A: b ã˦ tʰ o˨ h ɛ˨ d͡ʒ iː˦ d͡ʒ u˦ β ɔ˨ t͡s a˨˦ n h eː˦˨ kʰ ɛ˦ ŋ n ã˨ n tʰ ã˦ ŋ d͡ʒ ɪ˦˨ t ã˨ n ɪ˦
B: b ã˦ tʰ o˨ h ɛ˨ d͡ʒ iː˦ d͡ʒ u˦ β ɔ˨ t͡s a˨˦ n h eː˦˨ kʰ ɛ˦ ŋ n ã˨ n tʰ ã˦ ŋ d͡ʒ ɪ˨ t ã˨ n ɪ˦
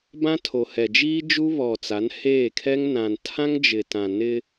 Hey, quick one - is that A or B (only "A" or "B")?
B